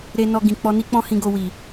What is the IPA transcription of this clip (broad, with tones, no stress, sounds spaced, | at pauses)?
ɾ e˦ n ɔ˧ ɡ ĩ˨ k͡p ɔ˧ n i˦ k͡p ɔ̃˦ h ĩ˧ ɡ o˧ w i˨